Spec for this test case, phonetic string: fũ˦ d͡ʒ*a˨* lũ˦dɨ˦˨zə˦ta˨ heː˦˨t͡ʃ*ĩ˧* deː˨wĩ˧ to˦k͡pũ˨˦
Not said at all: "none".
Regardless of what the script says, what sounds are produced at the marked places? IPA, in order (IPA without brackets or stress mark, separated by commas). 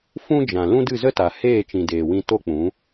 ã˨, ĩ˨